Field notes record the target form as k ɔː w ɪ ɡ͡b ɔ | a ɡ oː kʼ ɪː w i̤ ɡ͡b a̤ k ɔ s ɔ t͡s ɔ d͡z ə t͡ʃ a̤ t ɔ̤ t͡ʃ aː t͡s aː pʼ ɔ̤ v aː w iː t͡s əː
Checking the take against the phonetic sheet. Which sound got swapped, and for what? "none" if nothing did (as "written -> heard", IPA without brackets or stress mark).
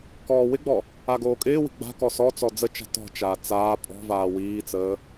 none